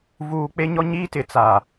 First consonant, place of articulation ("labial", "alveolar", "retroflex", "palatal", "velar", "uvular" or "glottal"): labial